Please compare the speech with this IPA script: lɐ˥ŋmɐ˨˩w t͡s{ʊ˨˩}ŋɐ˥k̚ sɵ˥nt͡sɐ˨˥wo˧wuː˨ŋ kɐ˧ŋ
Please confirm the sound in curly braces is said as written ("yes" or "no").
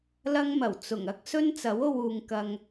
yes